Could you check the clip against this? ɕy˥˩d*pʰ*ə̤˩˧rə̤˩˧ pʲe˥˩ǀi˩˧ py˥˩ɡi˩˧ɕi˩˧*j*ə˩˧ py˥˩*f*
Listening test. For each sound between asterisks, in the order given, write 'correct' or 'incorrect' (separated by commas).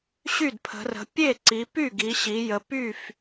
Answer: correct, correct, correct